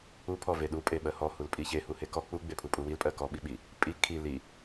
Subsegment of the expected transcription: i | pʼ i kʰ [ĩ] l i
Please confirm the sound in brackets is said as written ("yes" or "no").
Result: no